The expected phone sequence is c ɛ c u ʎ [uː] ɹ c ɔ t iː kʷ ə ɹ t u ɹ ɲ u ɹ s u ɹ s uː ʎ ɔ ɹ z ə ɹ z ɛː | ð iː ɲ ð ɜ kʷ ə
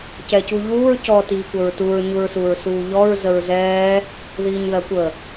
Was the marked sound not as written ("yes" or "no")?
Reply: no